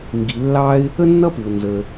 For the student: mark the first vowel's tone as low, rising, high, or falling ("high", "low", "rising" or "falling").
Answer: low